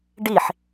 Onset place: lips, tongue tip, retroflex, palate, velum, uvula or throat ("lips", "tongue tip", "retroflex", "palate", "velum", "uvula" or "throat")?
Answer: retroflex